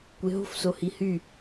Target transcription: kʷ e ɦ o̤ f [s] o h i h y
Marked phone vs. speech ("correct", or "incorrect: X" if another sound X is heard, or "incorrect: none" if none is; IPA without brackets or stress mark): correct